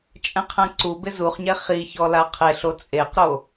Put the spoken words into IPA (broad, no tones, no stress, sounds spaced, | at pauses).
t͡ʃʼ ɛ̃ qʰ ɛ̃ ǀ u b ɪ z u χ ɲ ɛ χ i ç ɔ l a qʰ e ɬ o t͡sʼ e q ɾ o